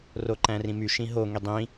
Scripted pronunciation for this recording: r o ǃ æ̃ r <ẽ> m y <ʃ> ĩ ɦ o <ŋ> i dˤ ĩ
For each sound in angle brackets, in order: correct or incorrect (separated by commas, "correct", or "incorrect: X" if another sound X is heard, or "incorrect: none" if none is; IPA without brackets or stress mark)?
incorrect: ĩ, correct, correct